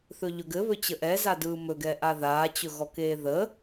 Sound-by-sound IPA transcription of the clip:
θ ɵ ʎ ɵ ɡ ɘ β ɵ t͡ɕ ə ʔ ɛ z a d ɯː m ɵ ɡ ɛ ʔ a ð aː t͡ɕ ɵ ɣ ɔ k eː ð ə

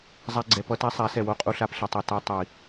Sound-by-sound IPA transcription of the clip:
zˤ a˦ ɡ͡ǀ ɛ˧ p ʌ˦ t a˦ sˤ a˨˦ s ɛ˨ w o˦ qʼ u˧ ɬ a˧ p ɬ ɛ˧ tˤ ɛ˧ t a˧ tˤ i˨

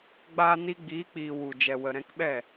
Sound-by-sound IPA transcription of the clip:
ɡ͡b aː˧ n i˧ ɡ͡b iː˨˦ k͡p iː˨ w u˨ d͡ʒ ɛ˨ w ə˨ ɾ ɛ̃˧ k ɓ ɛ˦˨

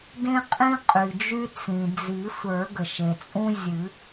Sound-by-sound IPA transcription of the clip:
d ẽ˦ qʼ ĩ˦ qʼ y˩ d͡ʒ y˦ t͡s ĩ˩ d͡z i˨˩˦ sʷ ə˞˨˩˦ ɡ ə˩ ʃ e˩ t͡sʼ ũ˦ zʲ ɨ˨˩˦

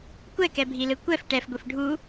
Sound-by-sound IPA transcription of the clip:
kʷ ɛ k ɛ bʱ i l ɯ kʷ ɛ f ʈ ɛ f ɡʷ i f ɖʱ u

